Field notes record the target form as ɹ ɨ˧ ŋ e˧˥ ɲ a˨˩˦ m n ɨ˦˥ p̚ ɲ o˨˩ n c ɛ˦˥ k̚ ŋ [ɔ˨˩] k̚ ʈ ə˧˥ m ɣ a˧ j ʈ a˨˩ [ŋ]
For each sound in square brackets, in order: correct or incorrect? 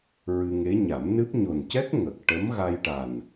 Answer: incorrect: ə˨˩, incorrect: n

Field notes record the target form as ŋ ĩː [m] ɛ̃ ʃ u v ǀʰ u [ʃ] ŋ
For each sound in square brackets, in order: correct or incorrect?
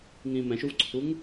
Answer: correct, incorrect: none

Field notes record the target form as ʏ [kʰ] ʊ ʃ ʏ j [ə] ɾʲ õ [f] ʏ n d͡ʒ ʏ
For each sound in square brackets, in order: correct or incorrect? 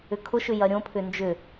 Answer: correct, incorrect: ɐ, incorrect: pʰ

